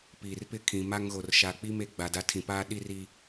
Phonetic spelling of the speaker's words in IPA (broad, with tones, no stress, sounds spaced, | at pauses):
p iː˨ r p ɪ˦ kʰ ĩ˨ m a˦ ŋ ɣ o˨ r ʃ a˨ k͡p i˦ m e˦ ɡ͡b a˨ d a˦ tʰ ĩ˨ p aː˦ ɗ i˦ r i˦